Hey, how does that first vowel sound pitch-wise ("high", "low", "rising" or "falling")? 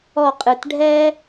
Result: falling